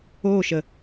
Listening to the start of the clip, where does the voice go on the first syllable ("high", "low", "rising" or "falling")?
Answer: falling